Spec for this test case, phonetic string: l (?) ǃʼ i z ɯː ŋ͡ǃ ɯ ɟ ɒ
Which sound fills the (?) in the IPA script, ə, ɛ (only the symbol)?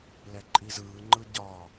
ɛ